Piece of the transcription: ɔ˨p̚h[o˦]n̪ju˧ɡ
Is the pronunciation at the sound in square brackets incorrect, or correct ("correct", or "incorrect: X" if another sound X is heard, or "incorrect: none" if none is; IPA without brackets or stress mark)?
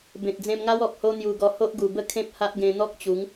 correct